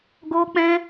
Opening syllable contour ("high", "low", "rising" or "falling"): high